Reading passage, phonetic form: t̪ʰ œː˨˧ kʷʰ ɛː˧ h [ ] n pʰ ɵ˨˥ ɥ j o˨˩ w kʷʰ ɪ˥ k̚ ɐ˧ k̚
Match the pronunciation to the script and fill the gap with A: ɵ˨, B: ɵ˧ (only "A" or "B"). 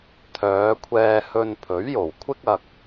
B